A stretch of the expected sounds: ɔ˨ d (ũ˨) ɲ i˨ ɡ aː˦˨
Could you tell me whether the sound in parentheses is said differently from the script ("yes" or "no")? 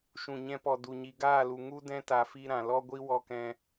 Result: yes